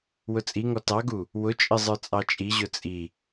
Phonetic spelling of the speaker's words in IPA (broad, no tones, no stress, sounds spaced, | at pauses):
w ʊ t͡sʼ i ŋ ɔ t ɑ ɡ u | w ʊ t͡ʃʼ ɪ zˤ ə˞ t͡sʼ ɑ t͡ʃʼ i ʑ ʊ t͡sʼ i